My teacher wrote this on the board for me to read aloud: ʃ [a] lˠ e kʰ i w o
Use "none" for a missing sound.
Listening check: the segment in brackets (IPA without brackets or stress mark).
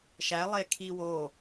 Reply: æ